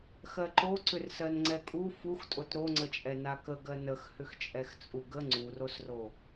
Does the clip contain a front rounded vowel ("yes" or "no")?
yes